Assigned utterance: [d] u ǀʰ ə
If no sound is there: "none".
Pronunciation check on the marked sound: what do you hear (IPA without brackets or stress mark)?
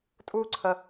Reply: tʼ